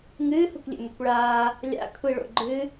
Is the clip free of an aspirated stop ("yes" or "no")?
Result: no